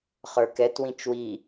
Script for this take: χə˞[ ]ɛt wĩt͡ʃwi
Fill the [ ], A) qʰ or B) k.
B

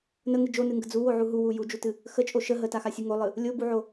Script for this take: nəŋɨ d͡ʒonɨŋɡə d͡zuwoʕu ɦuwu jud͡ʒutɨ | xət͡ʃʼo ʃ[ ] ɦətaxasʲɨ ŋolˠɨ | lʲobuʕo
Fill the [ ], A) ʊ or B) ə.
B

